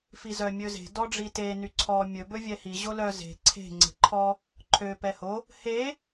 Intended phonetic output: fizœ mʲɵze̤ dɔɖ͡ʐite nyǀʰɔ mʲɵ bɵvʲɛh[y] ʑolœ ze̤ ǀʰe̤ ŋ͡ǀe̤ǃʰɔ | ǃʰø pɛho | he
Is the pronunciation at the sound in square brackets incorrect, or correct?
incorrect